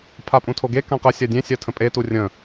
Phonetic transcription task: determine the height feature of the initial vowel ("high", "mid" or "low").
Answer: low